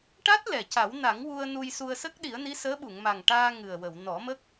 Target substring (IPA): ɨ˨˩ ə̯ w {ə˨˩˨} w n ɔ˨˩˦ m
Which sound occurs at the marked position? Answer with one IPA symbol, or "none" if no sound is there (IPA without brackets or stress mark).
ə˨˩˨